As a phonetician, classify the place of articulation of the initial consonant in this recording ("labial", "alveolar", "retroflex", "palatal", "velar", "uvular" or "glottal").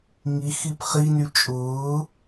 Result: velar